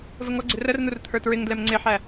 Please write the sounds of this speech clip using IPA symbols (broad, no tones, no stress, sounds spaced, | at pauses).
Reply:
v ə ŋ ɔ ɡ͡ǀ ɪ r ə r n̪ u r t̪ʰ ə˞ t ɹ ɪ ŋ d l ɛ m ŋ͡ǀ ɪ ħ æ